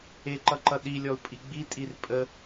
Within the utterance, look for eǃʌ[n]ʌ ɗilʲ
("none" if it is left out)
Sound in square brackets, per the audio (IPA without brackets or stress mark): ǃ